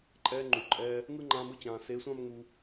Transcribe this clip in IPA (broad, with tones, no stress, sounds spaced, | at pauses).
ǃʼ ɛː˧ ŋ͡ǃ u˨ ǃʼ ɛː˧ | ŋ ɯ˦ ŋ͡ǃ ã˧ m ɯ˧ t͡ɕ ãː˨ s e˨˦ sʷ ã˦ m ŋ u˧